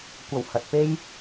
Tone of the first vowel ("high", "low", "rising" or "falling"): low